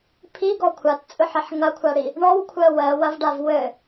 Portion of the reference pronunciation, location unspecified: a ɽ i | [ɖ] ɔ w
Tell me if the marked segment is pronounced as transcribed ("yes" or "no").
no